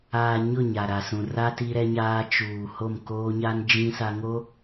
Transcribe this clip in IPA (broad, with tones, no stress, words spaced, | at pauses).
aː˨ ɲʊ˦˨ɲa˨ ɾa˨sũ˨ra˦ ti˦ɾɛ˦ɲaː˦ t͡ʃuː˨ ho˦˨m koː˦ɲa˦n d͡ʒĩ˦sa˦ŋo˦